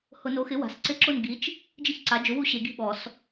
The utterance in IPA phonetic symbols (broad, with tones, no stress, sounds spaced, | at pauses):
h ʊ˨˩˦ n o˩˥ x ɪ˩˥ w a̤˩˥ s ǀ ɪ˥˨ ǁ ʊ˥˨ n ɡ i˩˥ t͡ʃ | d͡ʒ ɪ˥˨ ç ǀ a˩˥ d͡ʒ ʊ˩˥ w u˥˨ ɕ e˨˩˦ ɡ i̤˥˨ ɓ ɔ˨˩˦ s